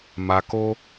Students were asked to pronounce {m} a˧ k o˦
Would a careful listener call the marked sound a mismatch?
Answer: no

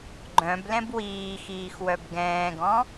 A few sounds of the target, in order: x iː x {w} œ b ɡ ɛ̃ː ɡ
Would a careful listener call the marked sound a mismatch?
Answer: no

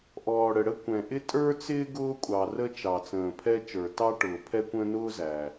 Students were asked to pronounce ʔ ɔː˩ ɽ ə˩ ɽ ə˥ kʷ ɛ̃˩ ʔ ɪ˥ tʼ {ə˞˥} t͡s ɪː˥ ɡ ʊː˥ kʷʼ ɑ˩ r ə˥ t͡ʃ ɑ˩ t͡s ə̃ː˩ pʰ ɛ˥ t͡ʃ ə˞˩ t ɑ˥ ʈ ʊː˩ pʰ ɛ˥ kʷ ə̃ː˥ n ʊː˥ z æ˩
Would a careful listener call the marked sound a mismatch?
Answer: no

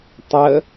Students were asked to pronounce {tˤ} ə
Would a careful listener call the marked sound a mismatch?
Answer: no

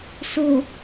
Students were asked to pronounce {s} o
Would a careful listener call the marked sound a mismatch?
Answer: no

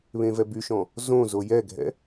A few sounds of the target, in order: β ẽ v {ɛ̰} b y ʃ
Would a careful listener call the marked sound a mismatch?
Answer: yes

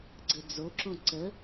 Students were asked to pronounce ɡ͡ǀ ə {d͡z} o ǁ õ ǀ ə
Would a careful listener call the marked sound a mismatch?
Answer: no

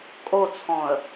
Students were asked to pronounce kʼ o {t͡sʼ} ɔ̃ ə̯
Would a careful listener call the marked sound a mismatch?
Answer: yes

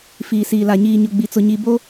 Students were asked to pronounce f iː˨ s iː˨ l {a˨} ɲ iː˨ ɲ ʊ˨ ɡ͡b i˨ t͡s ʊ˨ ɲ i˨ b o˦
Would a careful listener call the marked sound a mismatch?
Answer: no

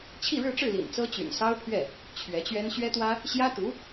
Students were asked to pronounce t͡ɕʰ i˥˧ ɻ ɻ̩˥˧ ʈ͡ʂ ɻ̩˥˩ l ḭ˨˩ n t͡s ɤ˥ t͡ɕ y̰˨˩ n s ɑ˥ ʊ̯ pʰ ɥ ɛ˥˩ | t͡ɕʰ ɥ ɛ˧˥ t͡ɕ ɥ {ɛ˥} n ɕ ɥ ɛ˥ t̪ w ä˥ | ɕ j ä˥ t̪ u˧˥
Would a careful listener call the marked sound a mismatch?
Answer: no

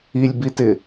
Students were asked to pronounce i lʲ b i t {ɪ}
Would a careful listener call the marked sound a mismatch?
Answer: no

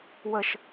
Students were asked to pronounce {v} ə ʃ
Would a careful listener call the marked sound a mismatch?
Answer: yes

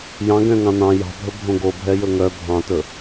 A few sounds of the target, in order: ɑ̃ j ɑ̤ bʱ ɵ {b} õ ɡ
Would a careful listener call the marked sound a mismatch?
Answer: yes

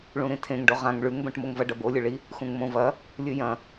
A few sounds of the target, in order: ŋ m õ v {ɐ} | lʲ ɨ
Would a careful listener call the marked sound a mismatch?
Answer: no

